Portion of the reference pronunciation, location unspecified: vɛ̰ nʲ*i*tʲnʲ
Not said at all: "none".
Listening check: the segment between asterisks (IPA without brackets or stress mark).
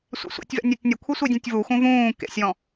e